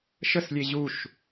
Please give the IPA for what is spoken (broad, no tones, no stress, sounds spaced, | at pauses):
ʃ ə s lʲ e ʑ u ʃ